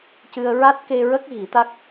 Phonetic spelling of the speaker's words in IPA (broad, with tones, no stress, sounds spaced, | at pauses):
c ɨ˧ ə̯ ɹ a˦˥ t̚ k e˧ ɹ ə˦˥ k̚ ɣ i˨˩˦ t̪ a˦˥ k̚